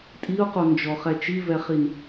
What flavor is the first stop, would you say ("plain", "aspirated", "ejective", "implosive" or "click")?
ejective